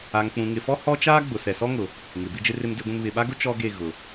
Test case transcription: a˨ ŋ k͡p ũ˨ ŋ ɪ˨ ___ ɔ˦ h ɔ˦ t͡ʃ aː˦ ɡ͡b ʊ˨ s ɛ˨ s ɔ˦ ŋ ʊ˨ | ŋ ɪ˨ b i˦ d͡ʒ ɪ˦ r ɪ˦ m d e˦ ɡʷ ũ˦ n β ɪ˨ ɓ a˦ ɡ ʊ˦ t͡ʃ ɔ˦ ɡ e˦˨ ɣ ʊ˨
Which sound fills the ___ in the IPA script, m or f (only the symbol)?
f